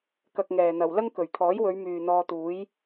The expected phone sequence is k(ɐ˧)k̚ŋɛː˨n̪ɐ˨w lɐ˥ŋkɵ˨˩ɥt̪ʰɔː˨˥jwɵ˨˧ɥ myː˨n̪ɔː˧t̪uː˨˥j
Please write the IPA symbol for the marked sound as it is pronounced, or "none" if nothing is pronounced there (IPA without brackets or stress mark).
ɐ˧